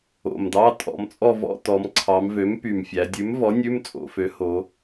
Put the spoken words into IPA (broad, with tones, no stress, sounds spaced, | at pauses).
o̰˨˩ m d ɑ˧˥˧ tʼ ɔ̰˩˧ m t͡sʼ ɔ˦˨ v ɔ̰˧˥˧ t ɔ˩˧ m ǀʰ ɑ˩˧ m v ø˩˥ m p y˨˩ m fʲ æ˩˧ dʲ ʉ˩˥ m v ɔ˩˥ nʲ ʉ˧˥˧ m t͡sʼ o̰˩˧ f ø˩˥ h o˩˧